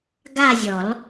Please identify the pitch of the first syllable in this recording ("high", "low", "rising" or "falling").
falling